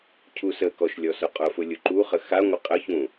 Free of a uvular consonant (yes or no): no